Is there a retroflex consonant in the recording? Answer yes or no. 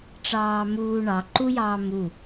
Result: yes